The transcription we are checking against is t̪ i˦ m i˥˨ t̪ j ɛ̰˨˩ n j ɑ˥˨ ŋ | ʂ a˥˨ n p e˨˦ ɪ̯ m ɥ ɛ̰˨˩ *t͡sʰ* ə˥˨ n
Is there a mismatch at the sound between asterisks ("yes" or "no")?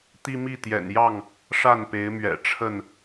yes